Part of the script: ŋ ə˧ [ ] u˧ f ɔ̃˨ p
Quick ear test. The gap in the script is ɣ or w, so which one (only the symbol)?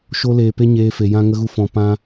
ɣ